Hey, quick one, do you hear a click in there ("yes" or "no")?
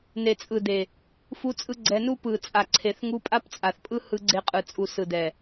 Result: yes